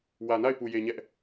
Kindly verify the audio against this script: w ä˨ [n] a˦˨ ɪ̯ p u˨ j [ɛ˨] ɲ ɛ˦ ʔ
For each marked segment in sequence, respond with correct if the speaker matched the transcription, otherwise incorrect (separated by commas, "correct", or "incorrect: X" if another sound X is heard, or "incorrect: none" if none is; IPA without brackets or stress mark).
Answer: correct, incorrect: e˨